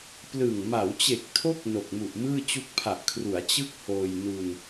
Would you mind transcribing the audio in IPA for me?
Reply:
p l ɯ˨˩ ŋ m a˩˦ w t͡ɕ e˨˩ k̚ tʰ o˦˥ k̚ n o˨˩ k̚ m u˨˩ ʔ m ɯː˥˩ t͡ɕ u˦˥ k̚ pʰ a˨˩ ʔ kʰ r u˩˦ a̯ t͡ɕ ɯ˥˩ k̚ h oː˧ j n u˧ n

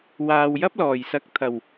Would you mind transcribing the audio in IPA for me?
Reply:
w aː˨ w j ɐ˥ p̚ l ɔː˨˩ j s ɐ˨˥ k̚ t̪ʰ ɐ˨˩ w

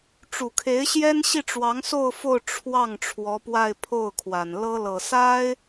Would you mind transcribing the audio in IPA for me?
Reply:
ʈ͡ʂ u˨˩ kʰ e˧˥ ɪ̯ ɕ j ɛ˥ n ɕ i˥˩ ʈ͡ʂ w ɑ˧˥ ŋ s o˥˧ ʊ̯ f o˥˧ ʊ̯ ʈ͡ʂʰ w ɑ˥˩ ŋ ʈ͡ʂʰ w ɔ˧˥ p w a˥˧ ɪ̯ pʰ o˥˩ ʊ̯ kʰ w a˨˩ n l ɤ˥ l ɤ˨˩ s a˥ ɪ̯

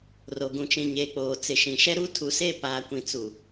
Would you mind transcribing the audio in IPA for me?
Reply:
r o˨ ɡ ũ˨ t͡ʃ ĩ˨ ɲ eː˨ k͡p oː˨ t͡s ɪ˨ ʃ ĩ˨ ʃ ɛ˦ ɾ u˦ tʰ u˨ s e˦˨ p aː˨ kʷ ĩ˨ t͡s u˨

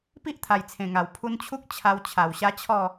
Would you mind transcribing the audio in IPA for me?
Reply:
p i˦ ʔ t̪ʰ a˨˩ j t͡sʰ ẽ˨˩ ŋ a˨˩ w pʰ u˧ n t͡ɕʰ u˦ k̚ t͡ɕʰ a˧ w t͡ɕʰ a˨˩ w ɕ a˦ t͡ɕʰ ɔ˥˧

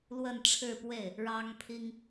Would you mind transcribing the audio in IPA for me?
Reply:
l w ə˥˧ n ʈ͡ʂʰ ɻ̩˥˧ p w e˥˩ ɪ̯ | ɻ ɑ˥ ŋ pʰ i˥ ŋ

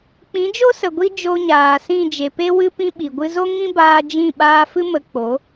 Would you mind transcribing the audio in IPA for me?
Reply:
k͡p ĩ˨˦ d͡ʒ o˦ s ə˨ ɡʷ i˧ d͡ʒ o˧ ɲ aː˨ s ĩ˦˨ d͡ʒ e˨ p e˧ w ɨ˧ p ĩ˧ ɓ i˨ ɡʷ ɨ˧ z o˦ ŋ ĩ˦ b aː˧ d͡ʒ ĩ˦˨ ɓ aː˧ f ɨ˦ m ə˧ k͡p o˨˦

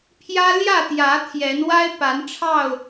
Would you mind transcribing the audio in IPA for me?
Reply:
pʰ j ä˦ l j ä˥˨ t̪ j ä˨˦ t̪ʰ j ɛ˨˦ n w a˦ ɪ̯ p a˨˦ n ʈ͡ʂʰ ɑ˥˨ ʊ̯

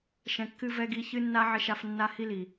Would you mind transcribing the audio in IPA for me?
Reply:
ʃ ɛ̃˨ kː ɨ˧ v ɛ˧ ɡ i˧ ç ɨ˦ nː a˦ ʕ ɪ˦ ʃ a˦ f nː a˦ h i˦ l i˨

